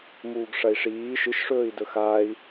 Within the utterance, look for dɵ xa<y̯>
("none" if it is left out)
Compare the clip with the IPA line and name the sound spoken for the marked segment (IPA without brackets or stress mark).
i̯